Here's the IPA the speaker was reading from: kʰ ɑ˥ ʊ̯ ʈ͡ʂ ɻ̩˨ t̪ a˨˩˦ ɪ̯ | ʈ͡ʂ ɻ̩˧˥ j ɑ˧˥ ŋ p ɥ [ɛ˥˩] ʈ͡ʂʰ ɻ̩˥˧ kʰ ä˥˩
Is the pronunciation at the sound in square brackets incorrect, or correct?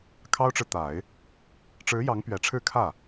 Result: incorrect